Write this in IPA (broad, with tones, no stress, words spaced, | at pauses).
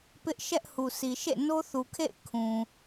pɪ˦ʔ ʃɛ˦ʔ hu˨si˨ʃḛ˦˨ no˦θu˨kʰḛ˦˨ɪ̯ kʰũ˨